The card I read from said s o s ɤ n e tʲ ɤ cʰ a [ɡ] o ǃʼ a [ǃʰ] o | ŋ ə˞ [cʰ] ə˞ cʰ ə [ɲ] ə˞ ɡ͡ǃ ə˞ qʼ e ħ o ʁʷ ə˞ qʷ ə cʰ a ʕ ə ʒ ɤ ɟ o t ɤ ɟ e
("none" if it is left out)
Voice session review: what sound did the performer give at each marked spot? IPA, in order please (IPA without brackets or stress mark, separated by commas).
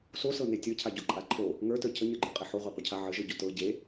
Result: ɟ, ǃʰ, t, ɲ